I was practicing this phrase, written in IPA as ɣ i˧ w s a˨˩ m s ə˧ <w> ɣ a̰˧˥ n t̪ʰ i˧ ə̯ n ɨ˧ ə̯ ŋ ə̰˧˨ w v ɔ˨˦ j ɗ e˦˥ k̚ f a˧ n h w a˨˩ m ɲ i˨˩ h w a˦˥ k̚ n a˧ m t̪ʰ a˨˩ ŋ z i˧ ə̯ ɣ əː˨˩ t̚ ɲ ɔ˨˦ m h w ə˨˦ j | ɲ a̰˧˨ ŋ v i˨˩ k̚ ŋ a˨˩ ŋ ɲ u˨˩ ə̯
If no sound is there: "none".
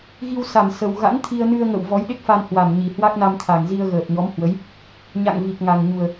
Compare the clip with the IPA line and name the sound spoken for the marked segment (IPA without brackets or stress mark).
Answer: w